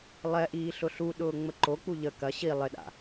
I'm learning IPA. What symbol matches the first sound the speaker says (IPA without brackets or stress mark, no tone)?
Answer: lˠ